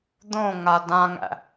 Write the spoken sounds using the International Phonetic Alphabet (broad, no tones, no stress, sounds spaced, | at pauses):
d̪ õ ŋ a d ã ŋ æ̰